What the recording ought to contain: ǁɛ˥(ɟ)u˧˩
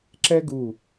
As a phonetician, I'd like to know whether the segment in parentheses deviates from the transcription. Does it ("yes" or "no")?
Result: yes